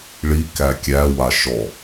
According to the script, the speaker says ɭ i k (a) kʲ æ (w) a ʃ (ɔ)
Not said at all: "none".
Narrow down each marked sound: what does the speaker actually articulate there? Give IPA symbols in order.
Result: æ, w, ɔ

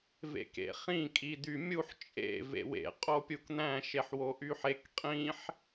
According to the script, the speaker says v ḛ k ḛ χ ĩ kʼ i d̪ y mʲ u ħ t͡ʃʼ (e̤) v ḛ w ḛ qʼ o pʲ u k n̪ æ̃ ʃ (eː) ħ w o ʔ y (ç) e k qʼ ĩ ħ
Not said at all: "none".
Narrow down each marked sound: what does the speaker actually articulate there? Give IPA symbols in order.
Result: ḛ, e, ħ

